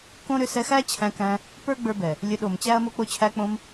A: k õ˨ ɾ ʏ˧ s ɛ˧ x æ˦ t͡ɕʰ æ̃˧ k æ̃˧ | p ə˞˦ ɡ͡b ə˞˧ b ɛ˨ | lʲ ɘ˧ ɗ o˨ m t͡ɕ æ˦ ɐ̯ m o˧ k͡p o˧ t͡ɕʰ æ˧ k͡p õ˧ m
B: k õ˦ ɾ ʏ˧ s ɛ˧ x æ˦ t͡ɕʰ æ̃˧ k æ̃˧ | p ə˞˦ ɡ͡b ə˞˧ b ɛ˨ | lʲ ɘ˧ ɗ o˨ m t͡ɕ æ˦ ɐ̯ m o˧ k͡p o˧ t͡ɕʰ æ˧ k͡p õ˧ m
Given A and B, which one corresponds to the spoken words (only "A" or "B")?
B